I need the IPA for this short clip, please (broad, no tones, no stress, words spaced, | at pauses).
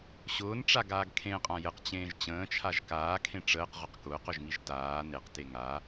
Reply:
ɕʊːnʈ͡ʂaɡaːɡ kʰẽqʼã jəqt͡ɕẽːʒ t͡ɕə̃ːt͡ʃʰaʒ kaːkʰẽ ʈ͡ʂəːqʁʊq kʊːqʊʒŋiʒ taː neqte ŋa